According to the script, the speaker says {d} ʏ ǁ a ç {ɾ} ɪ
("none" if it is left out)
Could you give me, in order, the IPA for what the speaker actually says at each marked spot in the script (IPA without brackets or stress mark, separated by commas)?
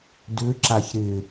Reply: d, ɾ